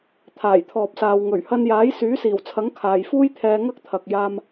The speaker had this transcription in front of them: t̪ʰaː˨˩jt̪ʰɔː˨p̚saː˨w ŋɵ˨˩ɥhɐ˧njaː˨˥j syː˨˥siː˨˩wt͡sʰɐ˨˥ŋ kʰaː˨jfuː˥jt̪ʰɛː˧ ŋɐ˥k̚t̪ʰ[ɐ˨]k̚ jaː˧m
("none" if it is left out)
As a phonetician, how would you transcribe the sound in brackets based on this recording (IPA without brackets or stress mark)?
ɐ˨